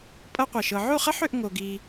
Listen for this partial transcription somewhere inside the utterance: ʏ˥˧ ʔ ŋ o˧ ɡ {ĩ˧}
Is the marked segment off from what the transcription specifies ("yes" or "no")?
yes